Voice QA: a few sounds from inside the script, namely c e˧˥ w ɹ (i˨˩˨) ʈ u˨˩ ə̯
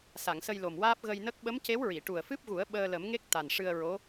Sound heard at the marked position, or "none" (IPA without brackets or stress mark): i˨˩˨